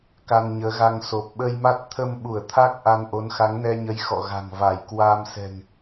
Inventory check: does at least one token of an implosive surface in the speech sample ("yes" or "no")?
yes